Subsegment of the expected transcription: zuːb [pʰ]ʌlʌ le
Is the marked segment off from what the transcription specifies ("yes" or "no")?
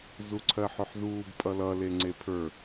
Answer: yes